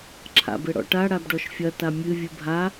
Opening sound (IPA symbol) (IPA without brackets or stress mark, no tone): ǁʰ